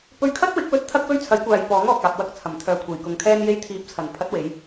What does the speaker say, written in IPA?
p ɵ˧ ɥ kʰ ɐ˥ t̚ w ɪ˨˥ k̚ w ɵ˧ t̚ t̪ʰ ɐ˥ k̚ w ɵ˥ ɥ t͡sʰ ɐ˨˥ j kʷ aː˨ j p ɔː˨˥ ŋ ɔː˨ k̚ aː˨ p̚ w ɐ˧ k̚ t͡sʰ ɐ˨˩ m t̪ʰ œː˨ kʷʰ e˨˩ j k ʊ˨ ŋ kʰ ɛː˥ n j e˧ j t̪ʰ iː˨˥ p̚ t͡sʰ ɐ˨˩ n pʰ ɐ˨˥ t̚ w e˨˧ j

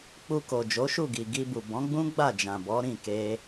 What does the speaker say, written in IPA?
k͡p u˧ k o˨ d͡ʒ o˨˦ ʃ u˦˨ ɡ i˨ ɡ i˧ b u˨ b ɔ̃˨˦ ɡ͡b ũ˦ ɡ͡b a˦˨ d͡ʒ ã˨ b ɔ˨˦ ɾ ĩ˦˨ k e˧

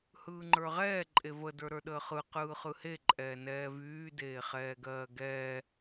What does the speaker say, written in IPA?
h ɯː ŋ͡ǃ ə˞ ʁ ɛː ǃʼ e v ə d ə˞ ɾ ə˞ ɗ əː χ ɯ q ɯː χ ɯ h e ǃʼ ɛː n ɛː v yː d eː χ ɛː ɡ ɜː ɡ ɛː

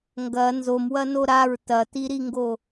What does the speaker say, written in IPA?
ŋ ɡ ɐ n z o m w ɐ n o ɾ a ɹ t ɐ t i ɾ i ŋ ɡ o

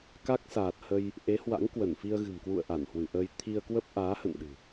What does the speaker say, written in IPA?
k a˦˥ k̚ s aː˨˩ t̚ h ə˧ j | ʔ e˨˦ h w a̰˧˥ ŋ k w ə˧˩ n f i˧ ə̯ ɣ ɨ̤˨˩ m k w ṵ˧˨ ə̯ ʔ a˧˩ n h w ɨ˧˩ ʔ əː˧ j t̪ʰ i˧ ə̯ k w ə˦˥ p̚ ʔ aː˨˦ h ə̰˧˨ n ɗ ɨ̤˨˩

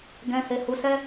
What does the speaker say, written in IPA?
ɡ ɛ̃˧ h e˧ h u˧ s ɛ˦

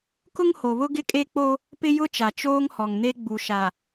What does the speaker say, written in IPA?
k ʊ˦ ŋ h o˨ β ʊ˦ ɡ ɪ˦ kʼ e˦ k͡p o˦ | p ɪ˦ j ʊ˦ t͡ʃ a˨ t͡ʃ oː˦ ŋ h ɔ˨ ŋ n e˦ ɡ͡b u˨ ʃ a˨

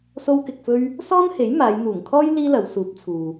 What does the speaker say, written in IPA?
s o˥ w k ɪ˧ k̚ f ɵ˥ ɥ | s ɔː˥ n h e˨˥ j m aː˨˧ j n̪ uː˨˩ ŋ kʰ ɔː˥ j l iː˥ l ɐ˨˧ w s uː˨˥ p̚ t͡sʰ uː˨

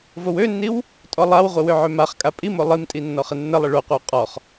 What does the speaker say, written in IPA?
v o w ø nː i w | tʼ ɔ lˠ a w ʁʷ ɪ w ø ʕ ø m a χ kʼ a pʼ i m o lˠ i m tʼ i nː ɔ χ ɪ nː ə lˠ ɪ ɭ o qʷ ɪ w qʼ ɔ χ

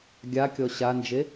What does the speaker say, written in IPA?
ɡʲ a kʲ ɔ ɕ a n d͡ʒ e

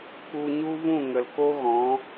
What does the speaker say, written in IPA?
k u˧ ɲ u˦ v ũ˦˨ ŋ ə˨ l k o˦ ɣ ɔ̃˨˦

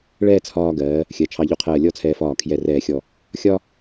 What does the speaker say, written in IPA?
ɭ ɛː˥˧ t͡sʰ ɒː˧ ɡ ɜː˩˧ | xʲ ɜ˩˧ t͡ʃʰ ɑ˧ ʎ u˧˩ qʰ ɜː˧˩ lʲ ɔ˥˧ t͡sʰ ɛː˧ f ɒː˧˩ kʰ j ɛ˧˩ r ɛː˧˩ xʲ ɔ˧˩ | xʲ ɒ˥

